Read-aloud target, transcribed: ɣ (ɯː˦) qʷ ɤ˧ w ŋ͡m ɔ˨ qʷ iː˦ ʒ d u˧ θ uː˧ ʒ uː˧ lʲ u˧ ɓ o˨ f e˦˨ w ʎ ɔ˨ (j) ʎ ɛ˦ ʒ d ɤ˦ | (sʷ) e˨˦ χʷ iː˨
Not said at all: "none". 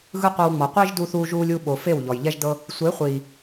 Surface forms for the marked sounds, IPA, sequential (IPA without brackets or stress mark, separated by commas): ɯ˦, j, sʷ